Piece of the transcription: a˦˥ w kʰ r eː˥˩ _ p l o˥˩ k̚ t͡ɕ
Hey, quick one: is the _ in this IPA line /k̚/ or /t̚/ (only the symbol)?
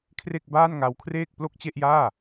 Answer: k̚